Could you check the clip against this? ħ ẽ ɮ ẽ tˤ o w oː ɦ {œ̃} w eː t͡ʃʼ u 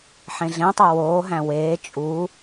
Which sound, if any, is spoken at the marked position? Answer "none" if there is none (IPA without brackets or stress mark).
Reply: æ̃